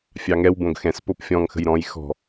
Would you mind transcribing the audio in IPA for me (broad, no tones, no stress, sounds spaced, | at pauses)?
fʲ ɑ ŋ ɛ w b õ ɡ x ɛ̃ s p o p fʲ ɔ̃ ŋ x ə̤ j ɾ ɔ̃ j x ɔ̤